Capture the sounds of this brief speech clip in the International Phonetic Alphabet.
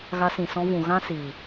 ɣ a˧ s ĩ˨ s ɔ̃˧ v ũ˨ ɣ ã˦ s iː˨

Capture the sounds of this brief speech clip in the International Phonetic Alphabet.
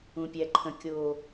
ũ˨ pʲ æ˨ ǃʰ ə̃˨ kʲ o˨

